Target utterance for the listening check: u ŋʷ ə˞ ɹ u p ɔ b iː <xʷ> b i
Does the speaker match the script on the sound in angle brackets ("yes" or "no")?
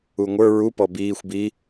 yes